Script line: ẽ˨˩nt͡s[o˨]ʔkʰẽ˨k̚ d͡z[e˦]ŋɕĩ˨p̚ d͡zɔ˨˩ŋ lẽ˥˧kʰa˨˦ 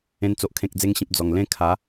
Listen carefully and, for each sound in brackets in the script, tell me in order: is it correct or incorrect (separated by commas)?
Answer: correct, incorrect